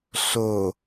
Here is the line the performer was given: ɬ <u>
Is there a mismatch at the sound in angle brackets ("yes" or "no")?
yes